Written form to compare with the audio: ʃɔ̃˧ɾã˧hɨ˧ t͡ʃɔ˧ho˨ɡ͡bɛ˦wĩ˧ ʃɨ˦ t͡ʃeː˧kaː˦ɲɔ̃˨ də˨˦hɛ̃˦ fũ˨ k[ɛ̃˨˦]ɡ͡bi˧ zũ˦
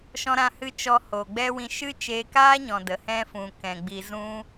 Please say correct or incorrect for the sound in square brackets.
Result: incorrect